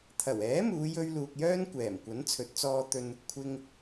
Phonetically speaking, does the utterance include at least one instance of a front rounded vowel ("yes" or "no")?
yes